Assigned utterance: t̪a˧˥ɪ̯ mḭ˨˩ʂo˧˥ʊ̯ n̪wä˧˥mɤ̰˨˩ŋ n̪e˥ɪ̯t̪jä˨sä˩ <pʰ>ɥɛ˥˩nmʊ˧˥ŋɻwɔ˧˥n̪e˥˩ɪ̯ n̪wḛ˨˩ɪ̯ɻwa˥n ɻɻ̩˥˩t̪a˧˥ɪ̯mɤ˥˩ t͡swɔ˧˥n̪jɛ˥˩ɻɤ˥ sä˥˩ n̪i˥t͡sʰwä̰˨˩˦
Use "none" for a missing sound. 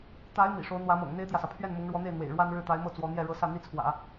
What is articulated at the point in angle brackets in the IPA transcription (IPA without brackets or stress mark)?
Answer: pʰ